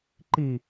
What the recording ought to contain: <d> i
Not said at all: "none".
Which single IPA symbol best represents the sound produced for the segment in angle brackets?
ǃ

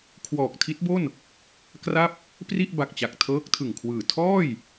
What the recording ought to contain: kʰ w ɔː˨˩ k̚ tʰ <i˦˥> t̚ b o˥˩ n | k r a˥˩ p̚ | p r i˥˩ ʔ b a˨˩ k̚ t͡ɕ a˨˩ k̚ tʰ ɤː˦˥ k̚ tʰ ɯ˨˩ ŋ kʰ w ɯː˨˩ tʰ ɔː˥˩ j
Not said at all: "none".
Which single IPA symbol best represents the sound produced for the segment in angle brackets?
i˦˥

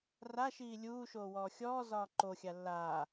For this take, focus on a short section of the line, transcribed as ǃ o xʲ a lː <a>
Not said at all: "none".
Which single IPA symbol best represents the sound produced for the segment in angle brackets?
aː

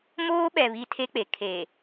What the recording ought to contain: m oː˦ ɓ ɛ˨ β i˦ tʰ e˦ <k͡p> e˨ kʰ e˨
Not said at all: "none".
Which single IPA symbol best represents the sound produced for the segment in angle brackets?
k͡p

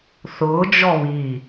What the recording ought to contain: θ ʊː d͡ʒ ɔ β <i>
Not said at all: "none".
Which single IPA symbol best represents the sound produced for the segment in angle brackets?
i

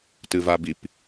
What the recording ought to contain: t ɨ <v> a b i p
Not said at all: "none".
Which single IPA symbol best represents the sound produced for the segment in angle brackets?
v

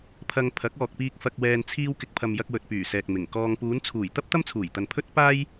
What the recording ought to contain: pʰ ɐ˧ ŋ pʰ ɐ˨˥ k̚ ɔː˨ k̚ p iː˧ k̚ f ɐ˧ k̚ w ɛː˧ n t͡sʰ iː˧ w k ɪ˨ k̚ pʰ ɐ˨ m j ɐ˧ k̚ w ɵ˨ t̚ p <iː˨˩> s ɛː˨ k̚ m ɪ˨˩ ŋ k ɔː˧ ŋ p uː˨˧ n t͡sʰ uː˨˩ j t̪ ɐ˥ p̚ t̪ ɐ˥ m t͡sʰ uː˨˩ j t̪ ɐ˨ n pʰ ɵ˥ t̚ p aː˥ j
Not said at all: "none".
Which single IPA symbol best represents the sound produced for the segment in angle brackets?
yː˨˩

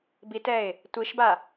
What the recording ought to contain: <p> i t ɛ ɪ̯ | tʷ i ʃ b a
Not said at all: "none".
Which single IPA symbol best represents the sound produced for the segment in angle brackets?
b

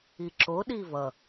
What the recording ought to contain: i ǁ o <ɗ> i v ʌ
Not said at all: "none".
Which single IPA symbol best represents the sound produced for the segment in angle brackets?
ɗ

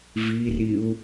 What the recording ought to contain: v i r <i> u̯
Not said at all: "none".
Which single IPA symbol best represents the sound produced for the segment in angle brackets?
i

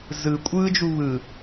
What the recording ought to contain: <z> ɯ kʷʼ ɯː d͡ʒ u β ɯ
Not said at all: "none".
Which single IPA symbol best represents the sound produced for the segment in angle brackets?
z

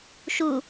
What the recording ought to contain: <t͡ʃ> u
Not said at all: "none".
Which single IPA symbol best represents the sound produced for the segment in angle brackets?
ʃ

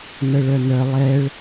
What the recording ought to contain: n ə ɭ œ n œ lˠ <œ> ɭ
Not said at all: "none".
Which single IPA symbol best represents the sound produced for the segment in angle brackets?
ɛ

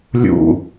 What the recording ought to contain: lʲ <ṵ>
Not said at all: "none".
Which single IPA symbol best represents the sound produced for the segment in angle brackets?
ṵ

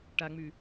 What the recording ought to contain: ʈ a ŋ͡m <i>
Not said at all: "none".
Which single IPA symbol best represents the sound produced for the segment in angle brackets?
y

